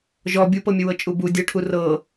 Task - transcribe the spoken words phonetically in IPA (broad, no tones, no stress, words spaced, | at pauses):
ʒɔ bʲupɤmʲəwɤ t͡ʃʼubu dʲɤʈʰu rɤ